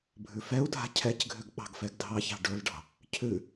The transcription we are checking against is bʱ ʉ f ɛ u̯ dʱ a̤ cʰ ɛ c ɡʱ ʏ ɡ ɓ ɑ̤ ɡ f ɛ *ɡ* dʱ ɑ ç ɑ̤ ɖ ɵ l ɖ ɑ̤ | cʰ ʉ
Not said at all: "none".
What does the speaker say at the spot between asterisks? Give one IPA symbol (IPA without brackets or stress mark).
ɡ